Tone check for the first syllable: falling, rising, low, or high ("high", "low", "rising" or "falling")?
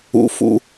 high